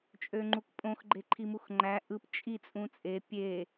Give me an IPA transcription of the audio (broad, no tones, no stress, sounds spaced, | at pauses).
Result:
t͡ʃʼ ø ŋ͡ǃ u k pʼ õ x ɡ͡ǃ e ǃʰ i m u x ŋ͡ǃ æ ʔ ɯ p t͡ʃʼ i t͡sʼ ũ t͡sʼ e pʲ e